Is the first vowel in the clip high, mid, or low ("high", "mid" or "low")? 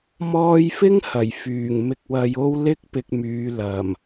mid